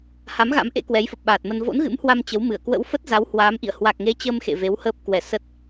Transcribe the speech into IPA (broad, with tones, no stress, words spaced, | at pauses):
ha˨˦mɣa̰˧˥mʔḛ˧˥ kwɛ˨˦jfə˨˩p̚ɓaː˨˩t̚mə˧n vo̰˧˥nɣɨ̰˧˥mhwa˧m t͡ɕə˨˦wmɨ˧˩ə̯ kwə̰˧˥wfə˦˥t̚za˨˦w hwaː˨˦mʔḭ˧˨ə̯ hwa˨˩k̚ŋe˨˦ t͡ɕəː˧mxḛ˧˨ ve˨˦whəː˦˥p̚ kwɛ˧˩ sə˦˥t̚